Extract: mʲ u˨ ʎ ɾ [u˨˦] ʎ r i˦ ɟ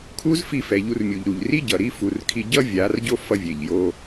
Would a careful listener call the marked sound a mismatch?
yes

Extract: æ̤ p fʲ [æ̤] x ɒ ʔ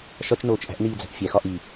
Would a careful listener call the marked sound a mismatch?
yes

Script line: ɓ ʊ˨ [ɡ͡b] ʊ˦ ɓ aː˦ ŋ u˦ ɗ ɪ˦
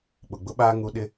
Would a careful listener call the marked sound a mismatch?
no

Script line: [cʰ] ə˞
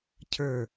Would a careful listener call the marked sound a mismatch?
no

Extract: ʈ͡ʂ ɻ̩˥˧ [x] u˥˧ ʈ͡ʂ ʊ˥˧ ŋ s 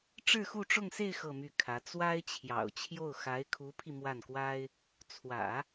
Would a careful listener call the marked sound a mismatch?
no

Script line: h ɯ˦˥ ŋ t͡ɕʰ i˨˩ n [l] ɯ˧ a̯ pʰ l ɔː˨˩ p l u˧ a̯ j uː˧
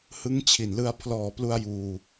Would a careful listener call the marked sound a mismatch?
no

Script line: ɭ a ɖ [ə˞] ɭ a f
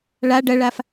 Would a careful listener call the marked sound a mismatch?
yes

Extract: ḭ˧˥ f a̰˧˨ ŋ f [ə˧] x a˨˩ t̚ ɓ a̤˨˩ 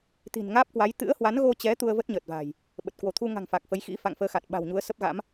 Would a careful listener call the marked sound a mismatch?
yes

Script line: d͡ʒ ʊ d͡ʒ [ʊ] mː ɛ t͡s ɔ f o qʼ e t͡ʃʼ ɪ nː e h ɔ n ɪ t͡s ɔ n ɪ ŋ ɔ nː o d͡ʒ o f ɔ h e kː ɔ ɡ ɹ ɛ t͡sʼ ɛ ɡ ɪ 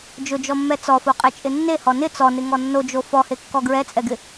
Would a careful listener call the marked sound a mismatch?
yes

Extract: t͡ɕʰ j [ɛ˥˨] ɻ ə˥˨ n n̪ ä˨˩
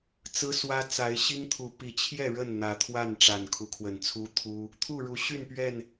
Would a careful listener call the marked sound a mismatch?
no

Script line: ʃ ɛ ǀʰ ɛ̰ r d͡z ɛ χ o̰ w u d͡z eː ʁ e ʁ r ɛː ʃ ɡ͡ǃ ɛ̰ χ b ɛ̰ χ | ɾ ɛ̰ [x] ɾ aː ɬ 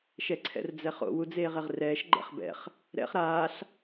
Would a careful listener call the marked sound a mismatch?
yes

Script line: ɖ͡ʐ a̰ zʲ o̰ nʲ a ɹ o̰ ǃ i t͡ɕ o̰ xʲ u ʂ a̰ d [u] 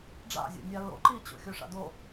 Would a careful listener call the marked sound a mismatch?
yes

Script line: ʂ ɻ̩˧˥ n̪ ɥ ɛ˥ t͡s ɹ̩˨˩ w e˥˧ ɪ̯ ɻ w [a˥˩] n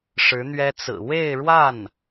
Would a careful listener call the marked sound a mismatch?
no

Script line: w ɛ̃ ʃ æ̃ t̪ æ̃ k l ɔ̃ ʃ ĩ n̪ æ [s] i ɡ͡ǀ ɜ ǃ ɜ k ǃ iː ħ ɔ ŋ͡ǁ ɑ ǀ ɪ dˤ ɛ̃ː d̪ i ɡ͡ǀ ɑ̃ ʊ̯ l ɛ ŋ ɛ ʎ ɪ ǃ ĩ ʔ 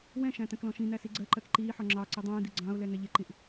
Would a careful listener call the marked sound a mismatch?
no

